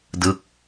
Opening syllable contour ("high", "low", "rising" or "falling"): falling